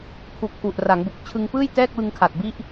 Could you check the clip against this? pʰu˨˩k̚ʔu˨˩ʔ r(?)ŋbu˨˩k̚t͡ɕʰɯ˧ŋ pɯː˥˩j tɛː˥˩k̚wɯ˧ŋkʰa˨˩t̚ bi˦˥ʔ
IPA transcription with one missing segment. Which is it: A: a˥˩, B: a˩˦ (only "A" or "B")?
B